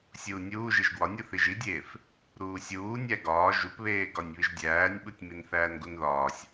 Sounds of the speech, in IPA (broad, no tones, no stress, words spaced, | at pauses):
sʲuːnʲuːʒiʒ ɡwɒnʲu θiʒidʲeːf | ɾuːsʲuː nʲæɡɒː ʒupβeːɡɒnʲ βiʒdʲæːnʲɓutʲ minθæːnɡunðɒːsʲ